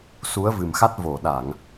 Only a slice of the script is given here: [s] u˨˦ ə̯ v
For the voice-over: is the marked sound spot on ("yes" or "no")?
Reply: yes